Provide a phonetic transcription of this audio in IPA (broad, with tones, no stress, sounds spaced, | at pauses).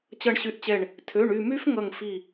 t͡ɕ ʌ˧˩ ɳ ɕ y˧˩ ʔ t͡ɕ ɛ˧˩ ɳ | tʰ ø˩˧˩ ɳ y˧˩ m y˦˥ f ŋ ʌ˧˩ ŋ f i˧˩